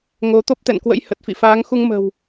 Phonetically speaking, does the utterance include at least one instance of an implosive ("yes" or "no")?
no